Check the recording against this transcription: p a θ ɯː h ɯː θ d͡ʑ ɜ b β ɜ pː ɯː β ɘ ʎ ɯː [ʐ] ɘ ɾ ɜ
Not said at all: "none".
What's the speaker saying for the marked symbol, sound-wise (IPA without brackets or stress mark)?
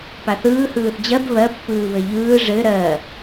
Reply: ʐ